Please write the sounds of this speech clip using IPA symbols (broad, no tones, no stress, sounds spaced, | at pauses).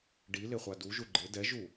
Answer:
ɖ i l ɪ χʷ a d u ʒ u ɡ͡ǃ ɪ d ɛ ʒ u